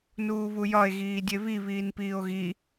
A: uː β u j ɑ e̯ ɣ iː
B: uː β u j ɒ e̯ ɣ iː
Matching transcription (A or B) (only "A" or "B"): B